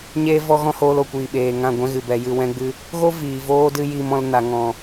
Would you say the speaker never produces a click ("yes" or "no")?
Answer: yes